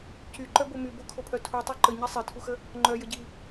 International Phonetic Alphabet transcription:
cyǃœbo mybokʰopʰœ tʰutˤy ǃəɲi sˤetʰuxə | ŋ͡ǃœjəɟi

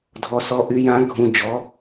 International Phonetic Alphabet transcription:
dʱɔ˧sɔ˧˥ ʔy˧jã˧˥ɡʱũ˧ d͡ʒɔ˧˥

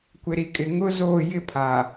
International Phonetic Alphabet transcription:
kʷɪ˨ɾi˨kʼɪ˨ ŋʊ˦zoː˦˨jɪ˦ pʰa˨

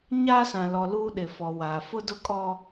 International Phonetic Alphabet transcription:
ɲaː˦sã˨lɔ˨ luː˦ɗɪ˨fɔ˨waː˨ fʊ˦dʊ˦kʼɔ˦

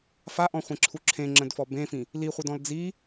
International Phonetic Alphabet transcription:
faʔɔ̃χʷẽǁʰu ǁʰẽŋ͡ǁə̃dfɔ bẽfĩ | liχʷɘdɔ̃l d͡zi

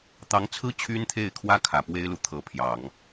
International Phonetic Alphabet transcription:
t̪ɑ˧˥ŋt͡sʰɹ̩˥ t͡ɕʰy˥nt̪ʰe˥˩ɪ̯kʰwä˥ kʰä˨˩pwe˥ɪ̯lu˨ t̪ʰɤ˧˥pʰjɑ˨˩˦ŋ

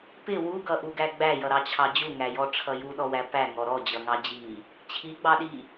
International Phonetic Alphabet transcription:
pɪ wuɡʌʔuɡæ ɡ͡bæjʌɾɑt͡ɕʰɑ d͡ʑuŋæjɔʈ͡ʂʰʌ juɗɔwæ pæŋɔ ɾɔd͡ʑʌŋɑ d͡ʑi | t͡ɕʰiɡ͡bɑɗi

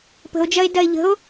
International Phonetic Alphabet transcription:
pə̤o̯d͡ʒɐe̯ dɐe̯ʎə̤o̯

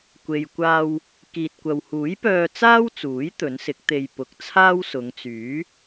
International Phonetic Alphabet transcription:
kʷe˨jkʷaː˧w | kiː˨t̚kʷɐ˨whuː˨˥jpœː˧ t͡saː˥wt͡suː˨˥j t̪ɵ˨˥nsɪ˨˥k̚t̪e˧j pʊ˨˥k̚t͡sʰaː˥wsʊ˨˧ŋt͡syː˨˥

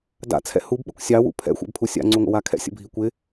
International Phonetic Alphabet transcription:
da̰t͡sʰɛ̰ hubɓəkʷ sʲɑwṵ pʰɛ̰xʷɛ̰bpʰu sʲa̰ŋ͡ǀuŋʷə̰wa kʰɛ̰sʲə̰bʱi kʷɪ

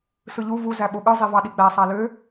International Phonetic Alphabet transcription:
sɯʎu vu zæɓoɠɯ zˤivɑɗiɡ͡bæ sˤælø

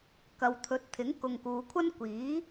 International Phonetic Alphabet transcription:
kɐ˨wt̪ʰɵ˨˥t̚t̪ʰɪ˨˥ŋ kʊ˨ŋkuː˨kʷʰɐ˥n kʷiː˨˥

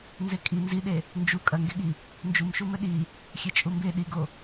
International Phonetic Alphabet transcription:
nzekʼi nziɗe | nd͡ʒu kʼɐŋɡeɠi | nd͡ʒumʃumɘ ɗi | xʲet͡ʃʼumbe ɗiɡo

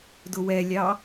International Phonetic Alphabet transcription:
dʊwɛlʲɑ

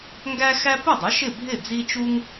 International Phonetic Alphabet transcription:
ŋɡæ˥xæ˥ pʊ˥˩dˤʊ˩˥ ʃɪ˥˩bʱɪ˥˩ d͡zi˥ t͡ʃu˥ŋ

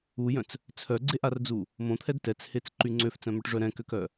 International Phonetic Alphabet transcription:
ujœ̃t͡s | t͡sʰœɡ͡ǀeʔard͡zu | mõt̪ʰɛd tɛt͡shet͡sǃy ŋ͡ǀøft͡sœ̃mœʈʐœ ɾɛ̃køkœ

